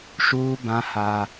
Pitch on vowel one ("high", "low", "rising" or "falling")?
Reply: high